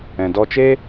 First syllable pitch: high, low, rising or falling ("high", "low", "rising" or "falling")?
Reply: low